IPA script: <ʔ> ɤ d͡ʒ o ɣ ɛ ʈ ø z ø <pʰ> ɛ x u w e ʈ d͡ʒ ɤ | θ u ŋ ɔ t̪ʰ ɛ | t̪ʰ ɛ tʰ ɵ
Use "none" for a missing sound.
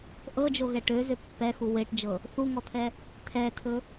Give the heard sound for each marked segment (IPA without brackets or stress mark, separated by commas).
ʔ, pː